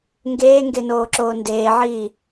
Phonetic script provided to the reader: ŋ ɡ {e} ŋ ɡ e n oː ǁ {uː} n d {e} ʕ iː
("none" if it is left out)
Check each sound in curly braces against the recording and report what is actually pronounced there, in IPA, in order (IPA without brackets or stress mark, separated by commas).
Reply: eː, oː, eː